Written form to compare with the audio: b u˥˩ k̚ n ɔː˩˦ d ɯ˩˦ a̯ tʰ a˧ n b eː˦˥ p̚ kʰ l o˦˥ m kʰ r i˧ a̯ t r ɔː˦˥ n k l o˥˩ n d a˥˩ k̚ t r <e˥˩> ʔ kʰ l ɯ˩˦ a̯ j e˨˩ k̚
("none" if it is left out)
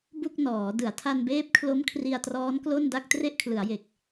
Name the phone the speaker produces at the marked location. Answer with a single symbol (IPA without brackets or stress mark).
e˥˩